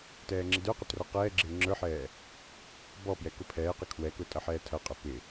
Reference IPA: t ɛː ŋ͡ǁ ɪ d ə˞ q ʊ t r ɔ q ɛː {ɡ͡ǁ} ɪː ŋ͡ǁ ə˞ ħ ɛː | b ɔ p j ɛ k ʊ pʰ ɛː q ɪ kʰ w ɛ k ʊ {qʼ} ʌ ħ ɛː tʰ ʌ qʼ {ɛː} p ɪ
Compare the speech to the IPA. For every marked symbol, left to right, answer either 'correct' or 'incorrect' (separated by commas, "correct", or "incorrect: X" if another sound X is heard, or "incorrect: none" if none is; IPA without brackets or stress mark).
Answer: correct, incorrect: tʼ, incorrect: ɛ